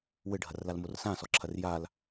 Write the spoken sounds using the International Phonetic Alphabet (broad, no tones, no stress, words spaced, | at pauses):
wɘɖʱɐrlalmor sãsɔǁʰɐr jal